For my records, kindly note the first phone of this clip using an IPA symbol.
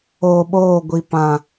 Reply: oː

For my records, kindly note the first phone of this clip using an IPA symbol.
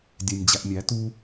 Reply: dʲ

